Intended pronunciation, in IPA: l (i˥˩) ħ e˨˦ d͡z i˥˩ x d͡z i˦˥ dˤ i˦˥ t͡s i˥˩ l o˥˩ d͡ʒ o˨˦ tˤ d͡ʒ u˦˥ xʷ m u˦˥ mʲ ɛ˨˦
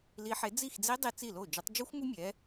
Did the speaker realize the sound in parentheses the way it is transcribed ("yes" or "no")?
no